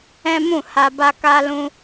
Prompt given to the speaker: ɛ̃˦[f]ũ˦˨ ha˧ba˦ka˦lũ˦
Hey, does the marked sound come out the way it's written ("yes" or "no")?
no